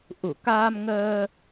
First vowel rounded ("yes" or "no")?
yes